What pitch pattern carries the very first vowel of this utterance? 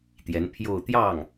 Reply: rising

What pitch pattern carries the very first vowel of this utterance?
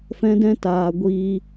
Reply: high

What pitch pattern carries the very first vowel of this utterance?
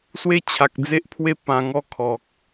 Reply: high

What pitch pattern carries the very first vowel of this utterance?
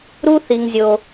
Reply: high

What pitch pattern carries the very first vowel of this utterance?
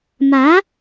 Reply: rising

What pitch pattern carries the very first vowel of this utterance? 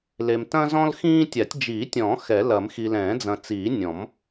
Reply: low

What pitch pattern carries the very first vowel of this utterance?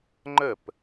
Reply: falling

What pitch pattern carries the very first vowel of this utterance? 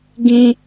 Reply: high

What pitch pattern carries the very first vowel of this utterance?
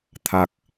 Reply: low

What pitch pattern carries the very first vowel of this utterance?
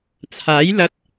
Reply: rising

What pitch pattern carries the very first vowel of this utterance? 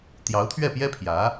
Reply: rising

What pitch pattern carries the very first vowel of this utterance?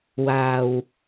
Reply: low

